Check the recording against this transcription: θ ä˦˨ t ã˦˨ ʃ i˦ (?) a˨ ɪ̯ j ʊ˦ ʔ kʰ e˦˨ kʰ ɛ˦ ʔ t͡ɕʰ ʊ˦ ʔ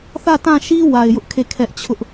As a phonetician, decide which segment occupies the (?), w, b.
w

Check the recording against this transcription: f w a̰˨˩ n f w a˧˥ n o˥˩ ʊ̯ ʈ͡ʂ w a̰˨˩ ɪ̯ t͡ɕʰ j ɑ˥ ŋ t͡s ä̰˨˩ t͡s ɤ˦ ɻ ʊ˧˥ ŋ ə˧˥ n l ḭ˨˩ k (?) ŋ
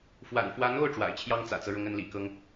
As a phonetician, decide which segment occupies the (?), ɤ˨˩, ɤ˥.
ɤ˥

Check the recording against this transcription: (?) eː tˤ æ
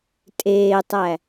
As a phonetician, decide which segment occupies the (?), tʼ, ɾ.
tʼ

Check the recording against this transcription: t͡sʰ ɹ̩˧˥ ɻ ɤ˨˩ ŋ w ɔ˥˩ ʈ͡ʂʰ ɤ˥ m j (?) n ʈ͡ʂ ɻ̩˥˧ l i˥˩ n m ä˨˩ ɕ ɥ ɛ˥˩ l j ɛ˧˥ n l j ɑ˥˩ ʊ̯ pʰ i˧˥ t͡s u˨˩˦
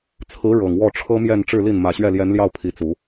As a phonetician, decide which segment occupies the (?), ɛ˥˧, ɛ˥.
ɛ˥˧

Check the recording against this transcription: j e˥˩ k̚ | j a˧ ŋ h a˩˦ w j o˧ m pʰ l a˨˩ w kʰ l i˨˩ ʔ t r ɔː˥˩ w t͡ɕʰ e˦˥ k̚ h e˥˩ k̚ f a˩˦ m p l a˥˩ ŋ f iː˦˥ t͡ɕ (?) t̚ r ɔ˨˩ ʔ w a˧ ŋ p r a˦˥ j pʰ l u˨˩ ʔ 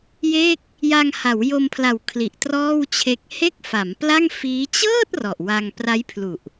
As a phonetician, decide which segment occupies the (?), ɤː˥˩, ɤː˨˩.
ɤː˥˩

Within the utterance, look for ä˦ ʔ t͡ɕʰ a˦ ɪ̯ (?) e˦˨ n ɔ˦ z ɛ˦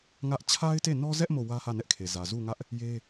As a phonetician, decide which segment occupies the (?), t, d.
t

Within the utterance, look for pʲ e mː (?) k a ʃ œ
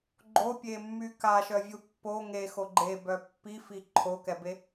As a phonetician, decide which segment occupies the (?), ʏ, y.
y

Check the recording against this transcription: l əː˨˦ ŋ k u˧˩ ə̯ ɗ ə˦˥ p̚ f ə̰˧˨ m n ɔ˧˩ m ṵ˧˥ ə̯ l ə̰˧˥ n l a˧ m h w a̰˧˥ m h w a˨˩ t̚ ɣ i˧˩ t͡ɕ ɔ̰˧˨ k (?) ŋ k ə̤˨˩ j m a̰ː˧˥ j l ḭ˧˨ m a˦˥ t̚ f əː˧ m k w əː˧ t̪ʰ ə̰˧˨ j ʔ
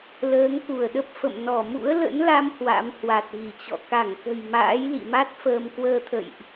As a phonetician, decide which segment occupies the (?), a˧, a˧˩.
a˧˩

